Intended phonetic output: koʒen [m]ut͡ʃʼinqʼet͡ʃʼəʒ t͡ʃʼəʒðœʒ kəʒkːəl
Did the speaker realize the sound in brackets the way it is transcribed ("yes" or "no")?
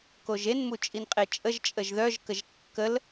yes